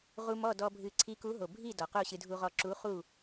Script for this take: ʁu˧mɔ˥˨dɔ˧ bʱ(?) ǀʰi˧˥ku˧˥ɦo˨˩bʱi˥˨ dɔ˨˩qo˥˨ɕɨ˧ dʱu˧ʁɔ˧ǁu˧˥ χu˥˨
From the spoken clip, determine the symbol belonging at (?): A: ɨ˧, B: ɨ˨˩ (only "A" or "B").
A